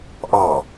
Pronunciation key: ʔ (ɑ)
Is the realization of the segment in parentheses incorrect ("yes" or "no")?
no